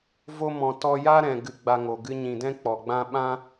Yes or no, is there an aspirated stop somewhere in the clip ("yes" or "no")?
no